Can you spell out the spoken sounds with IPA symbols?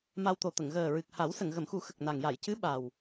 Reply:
m a˧ w t̪ o˨˩ t̪ ə˨˩˨ ŋ ɣ əː˨˩ ɹ ɨ˨˩ k̚ h a˨˩˦ w s ə˨˩˨ ŋ ɣ ə˨˩˨ m x u˨˩˦ x ə˨˩ k̚ n a˨˩ ŋ j a˨˩˨ j c ɨ˧˥ ɓ a˨˩ w

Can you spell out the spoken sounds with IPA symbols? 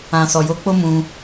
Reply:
ã˨ s ɔ˨ j o˨˦ k͡p o˦ m ũ˧

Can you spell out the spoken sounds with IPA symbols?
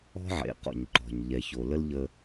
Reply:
ɔ̤˦ ʕ ḛ˨ q ɔ̰˨ ɲ ǃ ɔ̤˨ ɲ ʎ ɛ˨ ç o˨ l ə˦ l ʎ ə˦

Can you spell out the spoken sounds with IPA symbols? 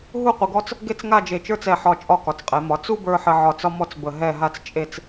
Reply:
ɦ u˥˧ qʷ ə˧ ɡ ɔ˥ t͡s | ɡ e˥˧ t͡s ŋ a˥˧ d͡ʒ e˧˩ t͡ʃ ə˞˥ t͡s ɛ˧˩ ħ ɒ˧˩ t͡ʃʼ ɒ˥˧ k ɒ˩˧ t͡s qʼ ɛ˩˧ m ɒ˩˧ t͡s u˥ b ə˞˧ ħ ə˧ ʕ ɒ˧ t͡s ɒ˥ m ɔ˥˧ t͡s b ə˧˩ ɦ ɛ˥˧ ɦ a˥ t͡s t͡ʃʼ e˥˧ t͡s

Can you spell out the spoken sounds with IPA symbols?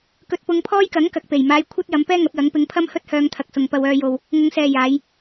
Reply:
k ɵ˨ t̚ p ʊ˨˧ ŋ pʰ ɔː˥ j k ɐ˨˥ ŋ k ɐ˨ k̚ p e˨˩ j m aː˨˧ j kʷʰ ɐ˥ t̚ j ɐ˨˧ m p ɛː˥ ŋ ɐ˨˥ p̚ j ɐ˨˥ ŋ p ɪ˨˧ ŋ pʰ ɐ˥ m h ɵ˥ t̚ h œː˧ ŋ t̪ʰ ɐ˨ k̚ s ʊ˨ ŋ p ɐ˧ w œː˧ j o˧ w | ŋ ʊ˨˧ ŋ s ɛː˨ j aː˨˧ j

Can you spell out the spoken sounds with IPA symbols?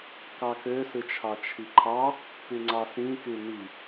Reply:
k ɑ k ø s ɯ t͡ʃʰ ɑ t͡ʃʰ i ǃʰ ɑ | p y ŋ͡ǀ ɑ s ĩ k y n i

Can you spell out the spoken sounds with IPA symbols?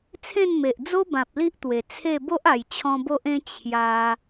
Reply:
t͡sʰ ẽ˥˧ n m e˨ ʔ d͡z o˦ b ã˨ p̚ l i˦ ʔ t̪ w e˨˩ t͡sʰ e˥˧ b o˦ ʔ a˨˩ j t͡ɕʰ ɔ̃˧ b o˦ ʔ ẽ˦ t͡ɕʰ j a˧

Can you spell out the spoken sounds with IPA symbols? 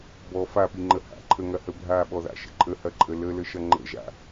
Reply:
b ɔ f a p i ŋ͡ǃ ə h a̰ ǃʰ ə ŋ ɐ h ə bʱ a ɓ ɔ ð a̰ ʃ ə̰ ǃʼ ə h ɐ ǃʼ ə l ə l ə ʃ ɐ ŋ͡ǃ ə̰ ʒ a̰

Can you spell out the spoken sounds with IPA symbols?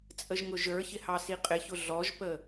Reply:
t͡sʼ ə ʒ ŋ ʊ ʒ ə˞ ç ɪ h ɑ s i qʼ ɪ ç ʊ ɮ ɔ ʒ p ə

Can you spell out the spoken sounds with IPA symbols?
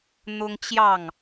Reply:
n̪ ʊ˦ ŋ t͡ɕ j ɑ˥˨ ŋ

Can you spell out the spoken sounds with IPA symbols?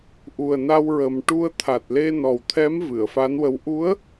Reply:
ʔ u˨˩ ə̯ n a˧ w ɹ ə˨˩ m ʈ u˧ ə̯ t̪ʰ a˨˩ t̚ l e˧ n ɔ˨˩ w t̪ʰ ɛ˧˥ m v ɨ˨˩˨ ə̯ f a˧˥ n w ə˧˥ w ʔ u˧˥ ə̯

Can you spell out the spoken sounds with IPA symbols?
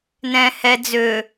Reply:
n ɛ̃ h ɛ d͡z ø

